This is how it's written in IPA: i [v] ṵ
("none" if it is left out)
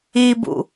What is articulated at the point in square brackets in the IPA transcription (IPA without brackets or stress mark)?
b